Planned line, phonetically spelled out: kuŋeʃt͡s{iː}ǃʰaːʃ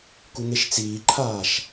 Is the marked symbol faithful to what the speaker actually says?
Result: yes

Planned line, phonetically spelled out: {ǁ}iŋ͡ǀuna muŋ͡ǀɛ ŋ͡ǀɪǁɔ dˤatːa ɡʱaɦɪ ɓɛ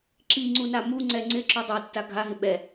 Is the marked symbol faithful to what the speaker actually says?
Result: yes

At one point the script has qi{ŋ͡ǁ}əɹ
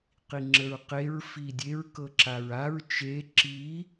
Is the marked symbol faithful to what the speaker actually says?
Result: yes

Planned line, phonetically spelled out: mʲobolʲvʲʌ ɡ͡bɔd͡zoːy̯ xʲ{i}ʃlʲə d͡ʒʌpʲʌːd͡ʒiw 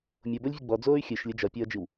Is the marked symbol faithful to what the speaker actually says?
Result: no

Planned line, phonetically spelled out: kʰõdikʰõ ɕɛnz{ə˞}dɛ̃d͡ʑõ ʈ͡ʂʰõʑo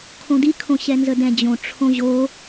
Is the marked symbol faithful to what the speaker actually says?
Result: no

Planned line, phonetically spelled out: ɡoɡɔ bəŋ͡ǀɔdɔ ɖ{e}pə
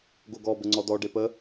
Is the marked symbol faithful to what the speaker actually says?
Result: yes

